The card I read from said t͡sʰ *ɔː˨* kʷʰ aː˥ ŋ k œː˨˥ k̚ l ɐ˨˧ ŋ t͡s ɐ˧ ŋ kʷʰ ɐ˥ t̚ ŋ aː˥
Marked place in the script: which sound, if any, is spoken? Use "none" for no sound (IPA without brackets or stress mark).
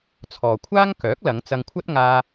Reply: ɔː˨